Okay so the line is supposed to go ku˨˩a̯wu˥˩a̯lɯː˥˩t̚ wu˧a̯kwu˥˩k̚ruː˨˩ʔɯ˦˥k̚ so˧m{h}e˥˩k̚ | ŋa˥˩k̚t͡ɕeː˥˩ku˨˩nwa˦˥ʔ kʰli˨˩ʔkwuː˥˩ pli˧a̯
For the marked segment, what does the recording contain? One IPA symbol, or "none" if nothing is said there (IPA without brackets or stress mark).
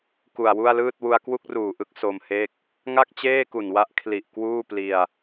h